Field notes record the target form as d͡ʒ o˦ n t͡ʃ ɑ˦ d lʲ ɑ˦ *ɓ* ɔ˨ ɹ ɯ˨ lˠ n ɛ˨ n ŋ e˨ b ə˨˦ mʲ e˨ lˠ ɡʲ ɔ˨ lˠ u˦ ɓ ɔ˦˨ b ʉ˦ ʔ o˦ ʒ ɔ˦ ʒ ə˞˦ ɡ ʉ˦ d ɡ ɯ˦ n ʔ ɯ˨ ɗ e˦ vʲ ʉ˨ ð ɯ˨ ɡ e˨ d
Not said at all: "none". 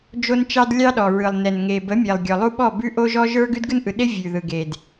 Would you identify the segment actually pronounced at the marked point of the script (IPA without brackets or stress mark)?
ɗ